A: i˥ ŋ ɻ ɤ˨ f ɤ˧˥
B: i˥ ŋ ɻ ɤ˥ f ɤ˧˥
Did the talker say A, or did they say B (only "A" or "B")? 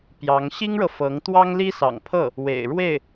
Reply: A